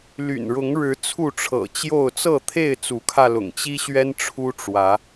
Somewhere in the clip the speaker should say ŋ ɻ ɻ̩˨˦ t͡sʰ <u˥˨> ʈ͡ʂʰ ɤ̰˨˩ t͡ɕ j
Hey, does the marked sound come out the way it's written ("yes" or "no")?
yes